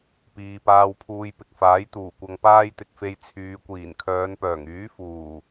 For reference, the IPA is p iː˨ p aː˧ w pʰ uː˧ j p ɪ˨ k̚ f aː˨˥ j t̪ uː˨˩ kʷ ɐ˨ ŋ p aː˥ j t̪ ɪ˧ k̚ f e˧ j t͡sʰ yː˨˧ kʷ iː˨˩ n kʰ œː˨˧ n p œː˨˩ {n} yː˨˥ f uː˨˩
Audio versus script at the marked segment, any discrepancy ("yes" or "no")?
yes